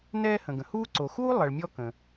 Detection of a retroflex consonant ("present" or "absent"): present